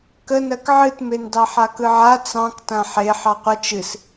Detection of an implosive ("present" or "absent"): absent